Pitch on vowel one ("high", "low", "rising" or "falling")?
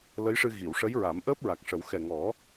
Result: rising